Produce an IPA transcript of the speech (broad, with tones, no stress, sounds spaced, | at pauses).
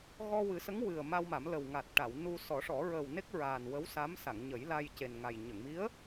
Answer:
ɣ ɔ˧ w ɨ˨˩˦ s ə˧˥ ŋ w ɨ˨˩ ə̯ m a˧ w m a˨˩˦ m l ə˨˩ w ŋ a˨˩ t̚ ʈ a˨˩˨ w n u˧ s ɔ˨˩˦ ʂ ɔ˨˩˦ ɹ əː˨˩ w n e˦˥ k̚ ɹ aː˨˩ n w ə˧˥ w s a˧˥ m s a˨˩˨ ŋ ɲ ə˨˩˦ j l a˧ j c e˨˩ n ŋ a˨˩ j ɲ ə˨˩˨ ŋ m i˧˥ ə̯